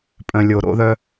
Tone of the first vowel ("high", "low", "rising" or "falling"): low